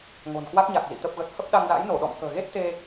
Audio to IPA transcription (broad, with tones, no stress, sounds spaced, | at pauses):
ŋ o̤˨˩ n k w a˦˥ k̚ ɲ a˨˩ k̚ z ḭ˧˨ t̪ ə˨˩ p̚ ɣ ə˨˩ t̚ h ə˦˥ p̚ ɗ a˧ ŋ z a̰˧˥ j n o˧˩ ɗ ɔ̰˧˨ m k ə̤ː˨˩ ɣ e˦˥ t̚ t̪ e˧